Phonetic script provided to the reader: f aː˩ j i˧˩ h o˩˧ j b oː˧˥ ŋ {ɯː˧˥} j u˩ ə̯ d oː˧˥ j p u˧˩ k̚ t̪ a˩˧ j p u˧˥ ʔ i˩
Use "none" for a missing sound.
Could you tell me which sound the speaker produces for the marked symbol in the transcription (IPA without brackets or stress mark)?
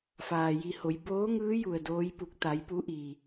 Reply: ɯː˧˥